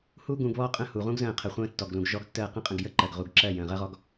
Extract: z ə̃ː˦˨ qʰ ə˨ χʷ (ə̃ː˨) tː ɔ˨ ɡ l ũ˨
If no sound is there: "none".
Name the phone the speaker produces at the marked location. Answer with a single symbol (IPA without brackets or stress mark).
ə̃ː˦